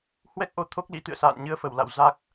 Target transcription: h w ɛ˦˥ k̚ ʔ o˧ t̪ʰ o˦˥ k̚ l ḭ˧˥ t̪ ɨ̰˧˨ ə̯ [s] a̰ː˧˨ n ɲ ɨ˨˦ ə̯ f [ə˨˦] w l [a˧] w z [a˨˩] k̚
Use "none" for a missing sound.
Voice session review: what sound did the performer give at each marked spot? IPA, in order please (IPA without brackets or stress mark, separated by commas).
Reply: s, ə˧˩, a̰˧˨, a˦˥